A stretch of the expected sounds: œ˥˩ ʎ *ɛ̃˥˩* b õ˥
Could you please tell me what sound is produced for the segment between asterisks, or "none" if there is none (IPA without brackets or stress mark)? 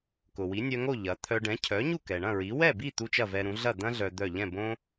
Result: ɛ̃˥˩